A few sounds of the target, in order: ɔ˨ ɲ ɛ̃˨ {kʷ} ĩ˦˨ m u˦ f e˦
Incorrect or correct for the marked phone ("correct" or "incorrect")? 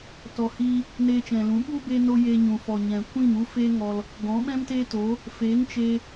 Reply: correct